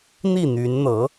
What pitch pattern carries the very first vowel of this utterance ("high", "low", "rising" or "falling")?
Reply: falling